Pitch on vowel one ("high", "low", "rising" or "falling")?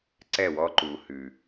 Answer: falling